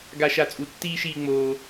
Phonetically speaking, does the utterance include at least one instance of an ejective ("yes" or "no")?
yes